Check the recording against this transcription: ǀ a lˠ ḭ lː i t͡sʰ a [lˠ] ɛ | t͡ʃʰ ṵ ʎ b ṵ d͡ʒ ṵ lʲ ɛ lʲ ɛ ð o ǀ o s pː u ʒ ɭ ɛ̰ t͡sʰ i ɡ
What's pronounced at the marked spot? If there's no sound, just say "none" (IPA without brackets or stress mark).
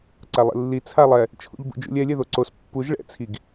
lˠ